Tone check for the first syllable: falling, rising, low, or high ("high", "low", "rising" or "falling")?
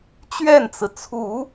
falling